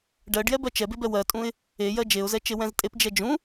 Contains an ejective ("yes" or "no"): yes